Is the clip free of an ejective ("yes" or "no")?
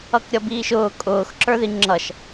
no